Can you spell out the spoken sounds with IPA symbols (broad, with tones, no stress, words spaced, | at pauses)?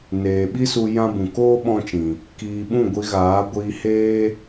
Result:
neː˨ɓi˦su˧ jã˦bũ˨ koː˦ ɓɔ̃˦t͡ʃĩ˨ | kiː˨ ɓũ˦˨ɡʷi˧ɣaː˨˦ ɡʷiː˧heː˦